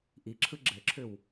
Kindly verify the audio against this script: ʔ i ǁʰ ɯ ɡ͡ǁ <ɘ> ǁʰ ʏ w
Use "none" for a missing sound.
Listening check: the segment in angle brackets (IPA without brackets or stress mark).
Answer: ɘ